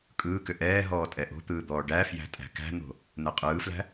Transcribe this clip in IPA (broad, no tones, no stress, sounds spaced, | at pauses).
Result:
kʼ ɯː k ʏ ʔ ɛː ɦ ɔː tʼ ɛ ʔ o̤ t̪ ɯː d̪ ɔː ɖ æ f j æ̤ tʼ æ̤ k æ̤ n̪ o̤ | n̪ ɛ qʼ ɯː f l æ̤